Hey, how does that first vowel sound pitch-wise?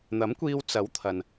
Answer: rising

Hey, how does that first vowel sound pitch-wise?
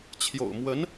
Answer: low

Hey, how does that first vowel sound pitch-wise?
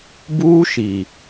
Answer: high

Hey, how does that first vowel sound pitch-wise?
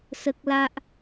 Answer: high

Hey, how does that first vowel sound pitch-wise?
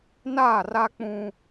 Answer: falling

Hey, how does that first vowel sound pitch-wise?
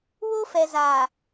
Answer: high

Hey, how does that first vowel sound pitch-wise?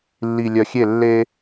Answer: low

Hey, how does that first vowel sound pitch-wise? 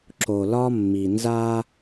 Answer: low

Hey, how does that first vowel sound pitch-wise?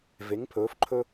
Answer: rising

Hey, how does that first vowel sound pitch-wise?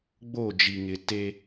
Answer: falling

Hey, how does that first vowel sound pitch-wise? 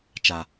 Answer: low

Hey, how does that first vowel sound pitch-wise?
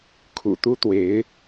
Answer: low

